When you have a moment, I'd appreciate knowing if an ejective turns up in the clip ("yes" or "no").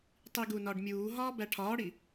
no